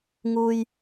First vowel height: high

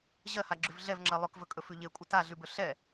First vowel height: mid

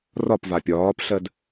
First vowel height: low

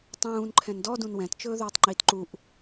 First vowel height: high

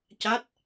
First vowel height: low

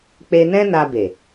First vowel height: mid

